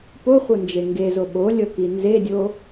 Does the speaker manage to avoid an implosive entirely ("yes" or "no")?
no